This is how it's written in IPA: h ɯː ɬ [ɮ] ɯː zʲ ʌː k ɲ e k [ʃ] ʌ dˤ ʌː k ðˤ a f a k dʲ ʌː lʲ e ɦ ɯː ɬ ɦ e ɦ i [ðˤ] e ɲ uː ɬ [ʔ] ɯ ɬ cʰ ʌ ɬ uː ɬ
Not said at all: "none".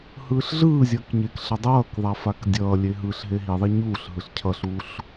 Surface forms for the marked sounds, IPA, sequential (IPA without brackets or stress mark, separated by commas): ɮ, ɬ, ðˤ, ɦ